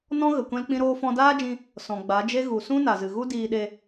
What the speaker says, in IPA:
n ɔ̃˦ ɣ ə˨ kʷ ɛ̃˦ l k͡p ĩ˦ ɾ oː˦ f ɔ̃˦ d aː˦ d͡ʒ ĩ˧ | s ɔ̃˨ ɡ͡b a˨˦ d͡ʒ e˦ ɣ u˨ s ũ˦ n a˨ z ɨ˨ ɣ u˦ d iː˧ ɗ e˧

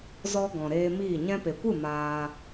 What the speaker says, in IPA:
z ɔ˧ ɡ ɔ̃˨ ɾ eː˧ m iː˦˨ ɲ ɛ̃˧ p e˨ kʷ ɨ˦˨ m aː˧

